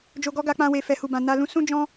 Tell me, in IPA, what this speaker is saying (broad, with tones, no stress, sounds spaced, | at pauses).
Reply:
d͡ʒ o˨ ɡ ɔ˧ ɡ a˧ k͡p ã˧ w e˨ f ɛ˨ h u˨ b ã˨ n a˧ l ũ˧ s ũ˦ d͡ʒ ɔ̃˦